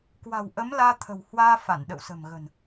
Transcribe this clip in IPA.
kwa̤˨˩wʔə˨˦mlaː˧ t̪ʰə̤˨˩whwaː˧fa˧˩n ɗə̰˧˨wsə̤˨˩mɣə̤˨˩n

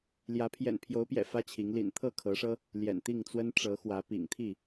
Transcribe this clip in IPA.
ljä˨˦ pʰjɛ̰˨˩npʰjo˨˦ʊ̯pjɛ̰˨˩ fä˦t͡ɕʰi˨˦ŋ lḭ˨˩nt̪ʰɤ˥˨kʰɤ˨˦ʂɤ˦ | ljɛ̰˨˩nt̪i˥˨ŋt͡swə˦n ʈ͡ʂɤ˨˦xwä˨˦pḭ˨˩ŋ t̪ʰi˥˨

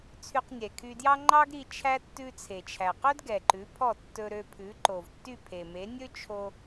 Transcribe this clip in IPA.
t͡sʰy˧qnʲɛ˩kʰy˧djɑ˥ ŋ͡ǃɑ˥ɡɾi˧ t͡ʃʰæ˥ tːʉ˧t͡sʰe˩t͡ʃʰæ˩qɵ˥d ɡɛ˩ǃʉ˩˥pʰɔ˥˩ tːɵ˧ɾø˧pʰʉ˩˥ ǃo˩vtːy˥˩pʰe˩me˩˥ nʲɵ˥t͡ʃʰo˧

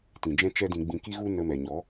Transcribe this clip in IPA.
tĩ˨d͡ʒɛ̃˦t͡ʃɛ˦dĩ˧ ɡ͡bĩ˧ki˦ɣu˦ nə˧mɛ˨ɲɔ˨˦

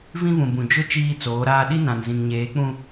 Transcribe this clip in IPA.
vĩ˦vũ˨bũ˨ d͡ʒʊ˦ t͡ʃiː˦t͡soː˨˦ɾaː˦ ɗi˦ nã˨nzĩ˨ŋɲeː˨˦k͡pũ˦

